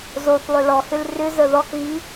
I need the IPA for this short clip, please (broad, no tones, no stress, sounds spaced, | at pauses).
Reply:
z o θ lˠ ʏ l ɔ h ʏ l r ʏ z ə ð ɔ k ɣ i